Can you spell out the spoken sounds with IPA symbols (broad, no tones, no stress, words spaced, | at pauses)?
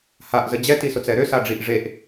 haʔzə d͡ʑɛtisʊt͡sɛ ɾøsaɖ͡ʐiʔ ʐeʔ